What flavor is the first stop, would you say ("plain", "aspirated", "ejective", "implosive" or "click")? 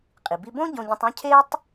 ejective